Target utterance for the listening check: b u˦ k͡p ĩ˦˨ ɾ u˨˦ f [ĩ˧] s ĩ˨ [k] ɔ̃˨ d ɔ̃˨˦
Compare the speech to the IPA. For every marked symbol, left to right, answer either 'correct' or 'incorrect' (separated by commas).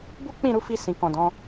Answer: incorrect, correct